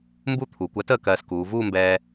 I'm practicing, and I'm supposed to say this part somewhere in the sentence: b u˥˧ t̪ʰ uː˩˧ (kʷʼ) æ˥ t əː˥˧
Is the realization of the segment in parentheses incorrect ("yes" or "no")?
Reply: yes